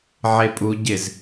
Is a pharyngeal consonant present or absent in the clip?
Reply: present